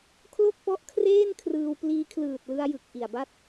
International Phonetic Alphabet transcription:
kʰlo˥˩k̚pɔ˦˥ʔ kʰreː˥˩nkʰrɯː˧w pliː˧kʰlɯː˨˩t̚lɯ˧a̯jɯ˨˩k̚ ʔi˨˩a̯ba˥˩t̚

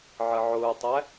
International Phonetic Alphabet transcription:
ʕəʕʊːtˤæ

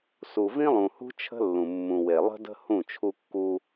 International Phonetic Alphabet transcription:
su˨vĩ˦lˠũ˨hṳ˦ t͡ʃʰə̤˦lːũ˨mːũ˨we˨ lˠə̤˦də̤˦ hũ˦˨t͡ʃʰu˦kːu˦

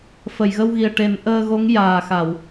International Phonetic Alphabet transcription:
fə˨˩˨jɣə˧wɣi˨˩ə̯ʈe˨˩˦n ʔəː˧ɣo˧˥ŋ jaː˨˩xa˨˩˨w

